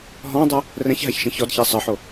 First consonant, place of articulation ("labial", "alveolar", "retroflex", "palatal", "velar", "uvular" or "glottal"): glottal